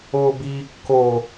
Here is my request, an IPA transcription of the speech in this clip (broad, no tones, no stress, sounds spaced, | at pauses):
oː b iː kː o